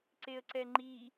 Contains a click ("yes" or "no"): yes